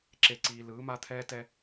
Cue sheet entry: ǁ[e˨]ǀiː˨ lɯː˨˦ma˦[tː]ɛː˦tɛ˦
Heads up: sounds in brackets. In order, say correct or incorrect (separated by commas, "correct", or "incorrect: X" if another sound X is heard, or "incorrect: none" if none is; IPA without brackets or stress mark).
correct, incorrect: t̪ʰ